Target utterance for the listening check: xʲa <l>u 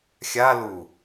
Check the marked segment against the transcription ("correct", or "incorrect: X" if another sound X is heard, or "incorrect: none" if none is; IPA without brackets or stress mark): correct